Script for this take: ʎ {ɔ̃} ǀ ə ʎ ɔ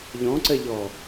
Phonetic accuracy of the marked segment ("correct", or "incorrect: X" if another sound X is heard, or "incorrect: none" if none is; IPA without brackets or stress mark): correct